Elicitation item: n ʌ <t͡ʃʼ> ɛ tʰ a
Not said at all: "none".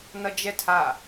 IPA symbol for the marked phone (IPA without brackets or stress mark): d͡ʒ